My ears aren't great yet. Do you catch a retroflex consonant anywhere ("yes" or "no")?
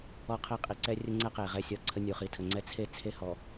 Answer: no